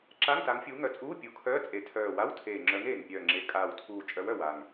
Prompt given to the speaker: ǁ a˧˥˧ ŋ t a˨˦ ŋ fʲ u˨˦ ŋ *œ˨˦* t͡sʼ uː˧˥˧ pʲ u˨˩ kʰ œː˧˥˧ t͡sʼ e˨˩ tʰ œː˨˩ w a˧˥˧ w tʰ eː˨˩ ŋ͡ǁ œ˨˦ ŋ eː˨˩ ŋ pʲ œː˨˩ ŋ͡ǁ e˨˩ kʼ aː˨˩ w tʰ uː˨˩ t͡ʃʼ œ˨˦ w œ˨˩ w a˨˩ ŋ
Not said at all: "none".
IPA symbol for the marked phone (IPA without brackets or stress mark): œ˨˦